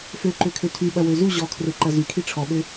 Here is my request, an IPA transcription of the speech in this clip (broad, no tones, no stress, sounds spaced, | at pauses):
f ø ǃ ø kʰ ø tʰ y ɓ ɐ w ø z u ʑ ɔ kʰ r ø ǃ ɐ z y kʰ i ʈ͡ʂʰ ɔ ɓ ø